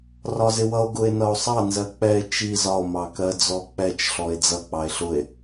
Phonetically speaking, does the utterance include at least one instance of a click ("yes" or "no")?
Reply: no